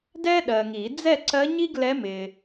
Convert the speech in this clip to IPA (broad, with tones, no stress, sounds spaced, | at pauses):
d ɛ˥ ɗ ɜ˨ ŋ i˨˩˦ d͡z ɛ˥˨ ǀ ɜ˧˥ ɲ i˥ ɡ l ɛ˧˥ m ɪ˨